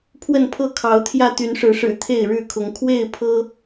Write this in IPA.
pʰ w ə˥˨ n pʰ ɤ˥˨ kʰ ɑ˨˦ ʊ̯ t̪ʰ j ä˥˨ t̪ y˨˦ n ʂ ɻ̩˨˦ ʂ ɻ̩˨˩ t̪ʰ e˥˨ ɪ̯ ɻ ɻ̩˥˨ kʰ ʊ˨˦ ŋ kʰ w e˥˨ ɪ̯ pʰ ɤ˦

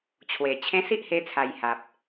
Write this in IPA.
t͡ɕʰ w e˨˩ t͡ɕʰ ẽ˧ s i˦ ʔ h e˧ t͡sʰ a˨˩ j h a˨ p̚

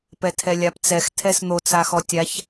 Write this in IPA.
p ɛ tʰ ɛ lʲ a p t͡s ɛ x tʰ ɛ s n̪ o t͡s a x ɔ tʲ a ç

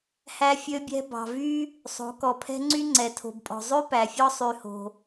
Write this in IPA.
h æ˦ fʲ ø˦ bʲ ɛ̤˦ b ɑ̤˨ v y˦ | sˤ o̤˨˦ k ɔ˨ pʰ ɛ̤˦ ŋ͡ǀ y˦ ŋ͡ǀ ɛ˨ tʰ o̤˨ b pʼ ɔ̤˨ zˤ ʉ˦ p æ˨ fʲ ɔ˦ sˤ y˨ h o̤˨

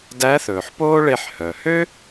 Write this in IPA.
d æ˧˥ θ ɵː˩ ħ p oː˥ ɭ e˧ ħ h œ˩ h ø˥

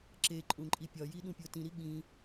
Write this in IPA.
ǁ e ǃʼ ũ ǃʼ i pʲ ɒ j i ɗ ũ pʲ o t ĩ ɾ i ɠ ĩ

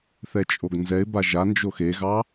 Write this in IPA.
θ ɛ t͡ʃʼ o ɡ n z ɛ ɪ̯ b a ʒ a n d͡ʒ o x e ɣ ɑ

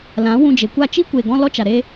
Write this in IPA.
l ã˨˦ w ũ˧ d͡ʒ e˨ kʷ a˦˨ t͡ʃ i˦ kʷ e˨ ɡ ɔ̃˧ l ɔ˦ t͡ʃ a˨ ɾ e˧

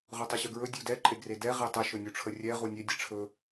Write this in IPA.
ʁ ɵ tˤ ɵ ɕ ɵ ɡ ɹ ɵ dʲ u d ɛ ǃʼ e ɡ r e d ɛ ʁ e tˤ ə ʃ ɵ nʲ u ʈ͡ʂʰ ə rʲ ɛ ʁ u nʲ e dʲ ɛ ʈ͡ʂʰ ɵ

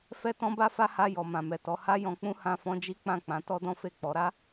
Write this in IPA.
f ɛ˦ t ɔ̃˦ b a˦ f a˦ h a˧ j ɔ˨ m ã˨ m ɛ˨ t ɔ˨˦ h a˦ j ɔ̃˧ k͡p ũ˦ h ã˧ f ɔ̃˧ d͡ʒ i˦ k͡p ã˦˨ k͡p ã˨˦ t ɔ˦ d ɔ̃˦ f e˦˨ k͡p ɔ˨˦ ɾ a˦

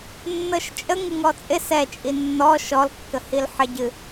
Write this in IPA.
nː ɤ ʃ t͡ʃʼ ə ŋ ɨ ŋ ɔ t͡sʼ ɪ s ɛ t͡ʃʼ i nː ɔ ʃ ɔ l kː ə h i l ħ ɪ ɟ ɨ

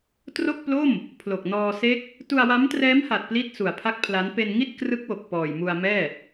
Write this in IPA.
t r o˥˩ k̚ p l o˥˩ m | pʰ l o˨˩ k̚ n ɔː˧ s e˦˥ k̚ | t u˧ a̯ w a˦˥ m t r ɛː˦˥ m h a˨˩ t̚ p l i˥˩ t̚ s u˨˩ a̯ pʰ a˥˩ k̚ pʰ l a˦˥ n p e˧ n ŋ i˥˩ t̚ k r ɯ˦˥ k̚ w o˨˩ k̚ p ɔː˨˩ j m u˧ a̯ m ɛː˥˩

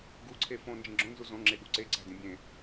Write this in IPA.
ɡ u ǀʰ e f õ n d͡ʒ ẽ ɡ͡ǁ õ n z u z õ ŋ͡ǁ e ɠ ṳ ǀ e ǀ æ̤ d ĩ bʲ ẽ

